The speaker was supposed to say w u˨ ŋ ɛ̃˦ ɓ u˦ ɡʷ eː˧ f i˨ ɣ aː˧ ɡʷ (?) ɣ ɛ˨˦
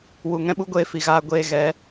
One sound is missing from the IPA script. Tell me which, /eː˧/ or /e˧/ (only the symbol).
eː˧